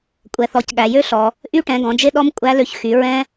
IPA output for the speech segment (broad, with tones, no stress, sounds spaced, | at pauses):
kʷʼ ɛ˩ θ ɔ˩˧ c ɠ æ˩ j ø˥ ɬ ɔ˩ | ʔ y˥ ʈ ɛ̃˩˧ ɡ ɔ̃˩˧ d͡ʒ e˥ ɗ ɔ˥ m kʷʼ æ˧˥ l ø˧ ç x y˩˧ ɹ ɛ̃˥